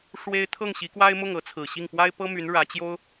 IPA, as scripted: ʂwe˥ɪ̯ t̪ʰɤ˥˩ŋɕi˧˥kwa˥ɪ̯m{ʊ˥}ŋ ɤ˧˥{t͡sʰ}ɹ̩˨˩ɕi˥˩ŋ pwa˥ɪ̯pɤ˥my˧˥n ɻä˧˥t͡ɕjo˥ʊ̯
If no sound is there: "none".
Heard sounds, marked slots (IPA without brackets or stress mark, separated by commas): ʊ˥˩, t͡sʰ